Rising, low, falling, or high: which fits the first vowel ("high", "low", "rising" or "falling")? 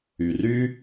low